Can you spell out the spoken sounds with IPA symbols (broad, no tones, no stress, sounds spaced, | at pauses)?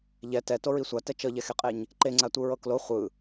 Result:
ʎ ɛ t ɛ t o ɹ i sʷ a t ɛ t͡ʃ ɤ ʎ ɛ x e qʼ e ɲ | ǃ e ŋ͡ǀ a tʷ ɯ ɹ ɤ k l o χʷ ɯ